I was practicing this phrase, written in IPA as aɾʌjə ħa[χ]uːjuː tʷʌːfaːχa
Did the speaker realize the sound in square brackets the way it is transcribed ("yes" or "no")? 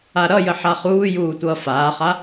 yes